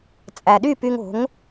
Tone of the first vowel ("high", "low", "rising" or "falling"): low